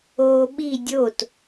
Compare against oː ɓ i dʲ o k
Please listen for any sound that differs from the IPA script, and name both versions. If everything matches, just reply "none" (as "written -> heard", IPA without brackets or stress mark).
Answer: k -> t